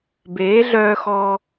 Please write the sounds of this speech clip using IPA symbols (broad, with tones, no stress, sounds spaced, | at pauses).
b eː˨˦ ɮ œː˧ x ɔː˧